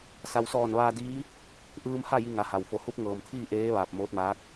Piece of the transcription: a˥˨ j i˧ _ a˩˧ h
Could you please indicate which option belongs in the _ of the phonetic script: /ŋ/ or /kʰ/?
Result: ŋ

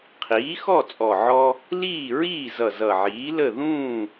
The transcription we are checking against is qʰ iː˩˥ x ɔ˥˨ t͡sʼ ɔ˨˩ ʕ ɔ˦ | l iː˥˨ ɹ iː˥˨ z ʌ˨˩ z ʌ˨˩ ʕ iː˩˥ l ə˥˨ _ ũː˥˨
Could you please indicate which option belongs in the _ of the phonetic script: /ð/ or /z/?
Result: ð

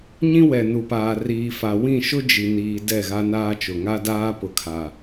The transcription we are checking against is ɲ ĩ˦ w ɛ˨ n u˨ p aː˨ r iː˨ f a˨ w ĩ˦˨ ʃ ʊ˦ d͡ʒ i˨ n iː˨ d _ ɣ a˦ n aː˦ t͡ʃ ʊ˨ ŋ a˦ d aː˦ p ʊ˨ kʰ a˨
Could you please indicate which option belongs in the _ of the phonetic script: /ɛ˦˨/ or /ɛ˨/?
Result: ɛ˦˨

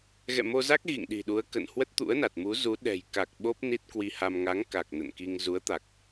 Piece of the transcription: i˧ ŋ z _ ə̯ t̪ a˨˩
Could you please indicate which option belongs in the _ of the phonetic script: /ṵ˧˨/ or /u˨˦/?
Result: u˨˦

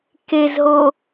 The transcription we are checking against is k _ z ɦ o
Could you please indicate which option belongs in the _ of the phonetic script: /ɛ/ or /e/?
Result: e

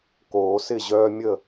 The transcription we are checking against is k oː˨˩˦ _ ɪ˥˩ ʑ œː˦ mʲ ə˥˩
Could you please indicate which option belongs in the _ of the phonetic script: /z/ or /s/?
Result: s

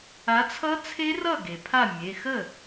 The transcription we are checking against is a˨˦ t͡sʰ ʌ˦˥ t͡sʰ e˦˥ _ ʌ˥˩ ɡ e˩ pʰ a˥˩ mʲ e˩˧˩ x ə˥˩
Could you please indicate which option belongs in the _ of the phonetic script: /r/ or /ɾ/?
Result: r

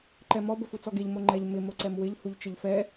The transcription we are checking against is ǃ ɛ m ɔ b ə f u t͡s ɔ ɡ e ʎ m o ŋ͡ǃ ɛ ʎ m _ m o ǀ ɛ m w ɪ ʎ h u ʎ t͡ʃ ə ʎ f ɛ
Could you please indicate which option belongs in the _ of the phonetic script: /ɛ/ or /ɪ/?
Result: ɪ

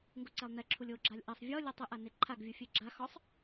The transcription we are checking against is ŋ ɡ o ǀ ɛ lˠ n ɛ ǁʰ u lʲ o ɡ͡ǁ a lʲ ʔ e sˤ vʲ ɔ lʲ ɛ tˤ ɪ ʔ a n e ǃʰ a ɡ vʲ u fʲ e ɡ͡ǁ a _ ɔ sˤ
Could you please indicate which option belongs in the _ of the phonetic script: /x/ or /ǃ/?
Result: x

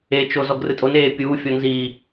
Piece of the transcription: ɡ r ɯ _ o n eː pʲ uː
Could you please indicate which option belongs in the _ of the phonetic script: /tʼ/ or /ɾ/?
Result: tʼ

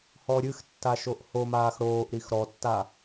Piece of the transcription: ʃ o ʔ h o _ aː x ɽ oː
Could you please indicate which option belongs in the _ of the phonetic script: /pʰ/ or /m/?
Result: m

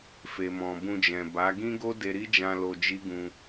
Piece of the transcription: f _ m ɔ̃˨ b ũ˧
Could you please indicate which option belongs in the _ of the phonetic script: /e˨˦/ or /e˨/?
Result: e˨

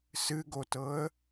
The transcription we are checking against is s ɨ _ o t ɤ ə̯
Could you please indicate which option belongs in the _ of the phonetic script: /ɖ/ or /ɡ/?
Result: ɡ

